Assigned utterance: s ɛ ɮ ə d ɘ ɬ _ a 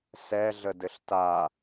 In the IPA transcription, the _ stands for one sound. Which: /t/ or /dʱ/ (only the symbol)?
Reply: t